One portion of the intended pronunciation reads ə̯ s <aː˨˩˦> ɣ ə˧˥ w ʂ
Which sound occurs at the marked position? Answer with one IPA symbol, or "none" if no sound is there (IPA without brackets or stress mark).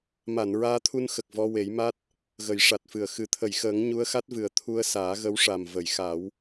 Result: aː˨˩˦